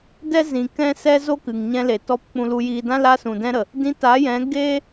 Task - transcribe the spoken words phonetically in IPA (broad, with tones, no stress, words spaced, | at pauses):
dɛ˦ zĩ˨ kɛ̃˦sɛ˦ zo˦kɨ˨ŋɲɛ̃˧le˨ tɔ˧p k͡pũ˨lu˨jiː˨dã˧ la˧sũ˨dɛ̃˧ɾə˨ | dĩ˧ta˨˦jɛ̃˨˦ ɡe˦